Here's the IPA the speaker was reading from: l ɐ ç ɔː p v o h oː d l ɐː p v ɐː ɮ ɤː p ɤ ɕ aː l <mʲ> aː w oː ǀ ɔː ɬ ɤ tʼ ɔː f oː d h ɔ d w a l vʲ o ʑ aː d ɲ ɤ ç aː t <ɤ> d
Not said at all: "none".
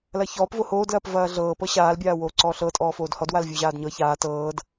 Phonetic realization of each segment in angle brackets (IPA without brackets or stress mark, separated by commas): bʲ, ɤː